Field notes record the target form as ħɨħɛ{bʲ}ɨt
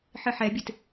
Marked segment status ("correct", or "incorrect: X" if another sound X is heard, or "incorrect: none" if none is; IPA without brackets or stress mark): correct